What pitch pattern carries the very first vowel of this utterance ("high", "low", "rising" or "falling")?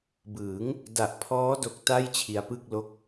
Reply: rising